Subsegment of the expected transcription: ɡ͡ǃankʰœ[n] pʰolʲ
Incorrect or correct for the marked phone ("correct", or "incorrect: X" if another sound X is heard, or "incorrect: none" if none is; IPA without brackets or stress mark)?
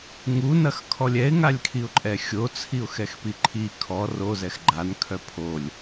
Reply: incorrect: none